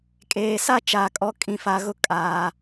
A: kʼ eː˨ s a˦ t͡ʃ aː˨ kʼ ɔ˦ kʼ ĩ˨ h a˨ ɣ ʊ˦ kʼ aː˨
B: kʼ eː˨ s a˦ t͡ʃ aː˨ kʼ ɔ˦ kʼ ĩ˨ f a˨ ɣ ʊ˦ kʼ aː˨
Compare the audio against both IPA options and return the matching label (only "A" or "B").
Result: B